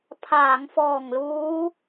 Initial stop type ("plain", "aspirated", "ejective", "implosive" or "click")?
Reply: aspirated